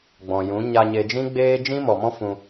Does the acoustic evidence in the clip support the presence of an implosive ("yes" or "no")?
no